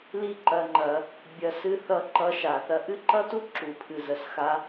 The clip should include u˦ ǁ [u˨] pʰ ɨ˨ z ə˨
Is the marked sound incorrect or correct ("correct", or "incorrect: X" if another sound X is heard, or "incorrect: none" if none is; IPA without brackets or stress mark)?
correct